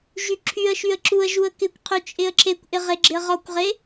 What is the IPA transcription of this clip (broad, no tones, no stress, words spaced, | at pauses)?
ʒyǁʰyə̯ʃyə̯ ǁuə̯ ʒuə̯kɪkʷqʰy t͡ʃʼɪə̯ǁekʷʔɪ ʁeɡ͡ǁɪə̯ʁɔkʷʁe